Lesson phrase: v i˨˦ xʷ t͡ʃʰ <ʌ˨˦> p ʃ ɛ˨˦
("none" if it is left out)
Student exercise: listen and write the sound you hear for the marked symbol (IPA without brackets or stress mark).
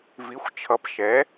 ʌ˨˦